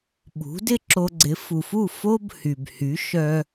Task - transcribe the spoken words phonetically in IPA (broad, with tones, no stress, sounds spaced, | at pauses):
ɓ ṳ˩˥ d ɪ˥ ǁ o˧ ɡ͡ǀ ɪ˩˥ f u˩ f u˥˩ f o˥ b h y˩ b h y˩˥ ʃ œ˧